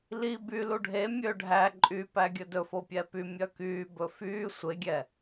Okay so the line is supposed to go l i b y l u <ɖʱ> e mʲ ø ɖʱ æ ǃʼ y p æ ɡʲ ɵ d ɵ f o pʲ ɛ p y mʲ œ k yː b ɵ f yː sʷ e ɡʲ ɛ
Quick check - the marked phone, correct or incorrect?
correct